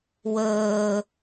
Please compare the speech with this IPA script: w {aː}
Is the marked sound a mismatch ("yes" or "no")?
yes